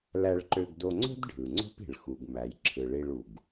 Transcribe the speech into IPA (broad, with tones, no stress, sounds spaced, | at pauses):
l æ˧ ɭ ǃ ø˧ ɡ d o˧ ŋ͡ǀ o̤˥ d ɖʱ ɯ˩ ŋ͡ǀ o̤˥ p i̤˩ ɭ x u˩ ɡ m æ˩ j ǁʰ ɯ˩ ɭ i˧ ɭ u˩ ɡ